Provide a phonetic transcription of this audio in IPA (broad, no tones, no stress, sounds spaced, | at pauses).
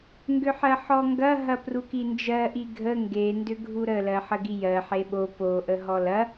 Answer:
ŋ ɡ ʏ ħ ɜ ħ ɔ ŋ ɡ ɐ ɦ ɐ p r u k i n d͡ʒ ɜ ʔ i ɡʱ ə ŋ ɡ e n d ʏ ɡʱ u ɾ ə l ɜ ħ ə ɡ i j ɜ ħ e ɓ o p o ʔ ə ɦ ɔ l ɐ